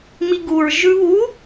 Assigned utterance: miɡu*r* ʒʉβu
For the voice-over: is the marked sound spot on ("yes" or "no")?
no